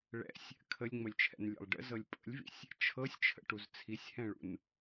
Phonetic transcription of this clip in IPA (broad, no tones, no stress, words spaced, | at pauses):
ɭɛ̰sʲ | kʰəlʲŋ͡məlʲt͡ʃʰɛ̰nlʲɛ̰lˠ ɖə̰zɤlʲ pʼə̰lʲvḭsʲ | t͡ʃʰɤsʲt͡ʃʰə̰ʈuz t͡sʰisʲhɛ̃ɭṵn